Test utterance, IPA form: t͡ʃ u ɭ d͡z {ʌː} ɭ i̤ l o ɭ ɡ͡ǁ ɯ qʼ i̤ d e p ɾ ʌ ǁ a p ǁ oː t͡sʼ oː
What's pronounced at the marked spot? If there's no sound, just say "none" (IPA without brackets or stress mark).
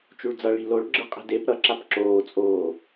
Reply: ʌ